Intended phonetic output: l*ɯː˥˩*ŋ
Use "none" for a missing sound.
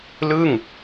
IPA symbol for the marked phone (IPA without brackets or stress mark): ɯː˥˩